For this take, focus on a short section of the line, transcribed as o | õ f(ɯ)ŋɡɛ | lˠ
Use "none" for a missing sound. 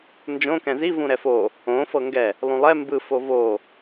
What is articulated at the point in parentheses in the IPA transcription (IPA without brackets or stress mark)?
ɤ